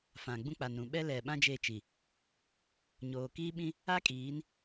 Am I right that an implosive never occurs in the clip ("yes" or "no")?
no